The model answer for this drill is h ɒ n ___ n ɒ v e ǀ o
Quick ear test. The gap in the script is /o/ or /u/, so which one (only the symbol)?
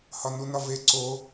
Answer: u